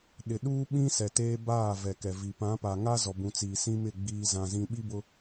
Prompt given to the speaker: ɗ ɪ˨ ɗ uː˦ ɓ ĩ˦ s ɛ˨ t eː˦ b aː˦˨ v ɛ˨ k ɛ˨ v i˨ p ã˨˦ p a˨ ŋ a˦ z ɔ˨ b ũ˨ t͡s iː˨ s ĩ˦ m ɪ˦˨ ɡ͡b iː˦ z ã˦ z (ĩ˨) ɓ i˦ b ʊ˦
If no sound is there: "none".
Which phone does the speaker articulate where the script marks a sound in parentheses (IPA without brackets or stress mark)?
ĩ˦